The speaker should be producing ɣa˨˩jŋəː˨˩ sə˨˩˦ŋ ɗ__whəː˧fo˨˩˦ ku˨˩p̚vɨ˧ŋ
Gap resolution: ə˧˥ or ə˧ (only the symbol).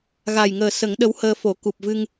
ə˧˥